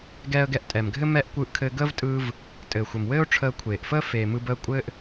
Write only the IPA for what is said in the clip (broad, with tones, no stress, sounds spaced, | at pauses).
ɡ ɛː˧ ə̯ ɡ ɛ˧ ʔ tʼ ɛ˩ m ɡʱ ɘ˥ m ɛ˧ ʔ kʷ ɯː˧ ʔ kʰ ɘː˧ ɡ əː˥ v tʼ ɯː˧ v | tʼ ɘː˩ xʷ ɘ˩ m w ɘː˥ ʊ̯ ʈ͡ʂʰ əː˧ kʷʰ eː˩ ʔ f əː˥ f eː˩ m ɯ˧ b əː˧ kʷʼ ɘː˥ ʔ